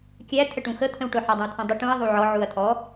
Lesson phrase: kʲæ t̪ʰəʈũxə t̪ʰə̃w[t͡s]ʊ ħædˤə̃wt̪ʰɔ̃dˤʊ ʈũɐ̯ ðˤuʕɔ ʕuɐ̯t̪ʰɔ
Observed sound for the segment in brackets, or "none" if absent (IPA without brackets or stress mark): ʈ